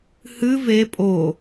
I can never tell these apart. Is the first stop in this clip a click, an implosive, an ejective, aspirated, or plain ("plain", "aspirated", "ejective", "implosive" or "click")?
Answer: ejective